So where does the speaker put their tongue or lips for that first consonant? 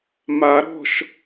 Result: lips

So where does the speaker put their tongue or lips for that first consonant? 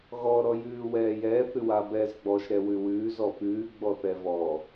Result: velum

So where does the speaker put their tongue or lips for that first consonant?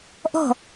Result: throat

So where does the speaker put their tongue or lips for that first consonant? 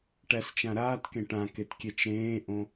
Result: retroflex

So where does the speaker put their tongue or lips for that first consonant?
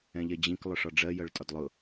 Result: palate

